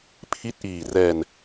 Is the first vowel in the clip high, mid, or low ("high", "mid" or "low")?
high